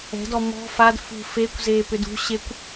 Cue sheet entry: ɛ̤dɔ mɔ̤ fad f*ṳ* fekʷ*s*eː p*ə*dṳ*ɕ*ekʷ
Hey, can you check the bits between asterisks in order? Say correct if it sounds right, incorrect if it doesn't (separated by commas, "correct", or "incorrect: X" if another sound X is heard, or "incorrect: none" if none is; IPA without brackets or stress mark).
correct, incorrect: z, incorrect: ʏ, correct